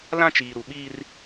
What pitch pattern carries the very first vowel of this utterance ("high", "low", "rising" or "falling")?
high